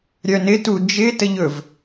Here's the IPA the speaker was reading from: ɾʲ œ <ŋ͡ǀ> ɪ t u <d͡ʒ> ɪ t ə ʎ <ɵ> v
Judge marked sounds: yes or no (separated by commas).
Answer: no, yes, yes